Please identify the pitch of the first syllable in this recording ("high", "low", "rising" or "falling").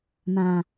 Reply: low